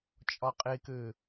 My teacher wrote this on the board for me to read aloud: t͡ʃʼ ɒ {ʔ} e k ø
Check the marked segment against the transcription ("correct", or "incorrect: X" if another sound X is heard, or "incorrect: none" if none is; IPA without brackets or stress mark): incorrect: qʼ